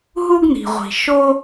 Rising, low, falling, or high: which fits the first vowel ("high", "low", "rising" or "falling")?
high